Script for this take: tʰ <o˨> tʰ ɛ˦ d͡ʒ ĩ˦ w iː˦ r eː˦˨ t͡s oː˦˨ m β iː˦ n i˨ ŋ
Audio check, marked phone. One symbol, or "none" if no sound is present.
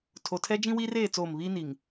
o˨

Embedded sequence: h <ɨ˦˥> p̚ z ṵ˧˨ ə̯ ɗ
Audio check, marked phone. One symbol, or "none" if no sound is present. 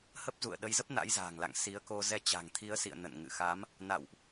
ə˦˥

